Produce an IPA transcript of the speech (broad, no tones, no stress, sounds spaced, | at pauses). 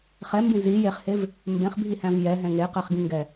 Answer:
χ ɛ m b ĩ z i j e χ h e v | m b ẽ χ bʱ i h æ̃ v j ɛ ɦ ɛ̃ ŋ e q ɛ χ ɡ ĩ ŋ ɡ ɛ